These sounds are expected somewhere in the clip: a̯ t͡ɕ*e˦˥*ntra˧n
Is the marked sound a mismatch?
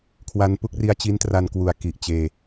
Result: yes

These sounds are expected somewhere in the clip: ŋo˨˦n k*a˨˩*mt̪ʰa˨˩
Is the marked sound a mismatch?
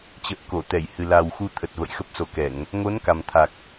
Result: no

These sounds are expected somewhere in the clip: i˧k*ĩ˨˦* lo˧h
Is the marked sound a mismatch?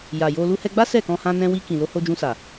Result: yes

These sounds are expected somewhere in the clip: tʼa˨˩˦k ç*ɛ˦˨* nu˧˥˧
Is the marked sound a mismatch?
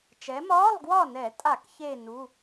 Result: yes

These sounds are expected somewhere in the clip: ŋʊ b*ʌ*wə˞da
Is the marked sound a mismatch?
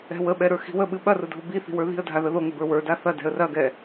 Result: yes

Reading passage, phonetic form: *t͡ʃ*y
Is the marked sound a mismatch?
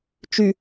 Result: no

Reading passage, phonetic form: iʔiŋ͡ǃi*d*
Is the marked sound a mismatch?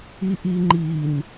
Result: yes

